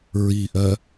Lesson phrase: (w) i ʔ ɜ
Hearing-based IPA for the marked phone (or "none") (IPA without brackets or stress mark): ɹ